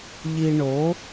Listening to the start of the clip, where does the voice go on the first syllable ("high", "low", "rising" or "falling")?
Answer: low